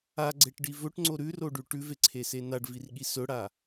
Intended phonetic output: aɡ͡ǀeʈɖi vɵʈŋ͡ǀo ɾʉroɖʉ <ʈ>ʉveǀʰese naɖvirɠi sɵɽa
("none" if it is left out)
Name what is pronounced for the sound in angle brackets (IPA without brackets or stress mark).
ʈ